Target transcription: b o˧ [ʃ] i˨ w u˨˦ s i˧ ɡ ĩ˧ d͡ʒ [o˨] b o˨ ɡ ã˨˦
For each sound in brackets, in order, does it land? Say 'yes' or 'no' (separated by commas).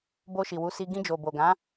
yes, yes